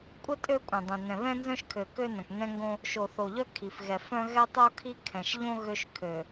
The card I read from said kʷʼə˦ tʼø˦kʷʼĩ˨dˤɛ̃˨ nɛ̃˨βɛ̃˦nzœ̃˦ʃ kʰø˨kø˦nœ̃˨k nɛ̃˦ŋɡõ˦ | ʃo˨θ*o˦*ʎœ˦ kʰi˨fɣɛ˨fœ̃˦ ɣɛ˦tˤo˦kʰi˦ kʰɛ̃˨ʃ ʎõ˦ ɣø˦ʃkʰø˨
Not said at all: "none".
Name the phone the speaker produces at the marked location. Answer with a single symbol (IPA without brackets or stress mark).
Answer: o˨